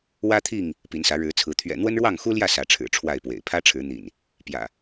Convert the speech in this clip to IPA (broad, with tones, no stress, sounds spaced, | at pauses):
w ä˦ t̪ʰ i˥˨ ŋ | p i˨˦ n s ä˨˦ ɻ ɻ̩˨˦ t͡sʰ ɹ̩˨˦ t̪ʰ ɥ ɛ̰˨˩ n̪ w ə˦ n ɻ w ɑ˥˨ ŋ x u˦ l j ä˥˨ s ä˨˦ ʈ͡ʂʰ ɻ̩˨˩ ʈ͡ʂʰ w a˥˨ ɪ̯ p w ḛ˨˩ ɪ̯ pʰ ä˦ ʈ͡ʂʰ ɻ̩˨˦ n̪ ḭ˨˩ n | p j ä̰˨˩